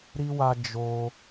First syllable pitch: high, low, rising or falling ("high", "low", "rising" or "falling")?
high